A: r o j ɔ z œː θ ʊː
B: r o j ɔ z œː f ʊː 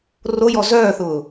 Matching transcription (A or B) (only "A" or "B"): A